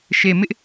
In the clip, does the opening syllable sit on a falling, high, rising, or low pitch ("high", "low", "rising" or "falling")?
low